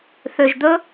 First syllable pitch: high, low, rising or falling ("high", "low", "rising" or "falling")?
low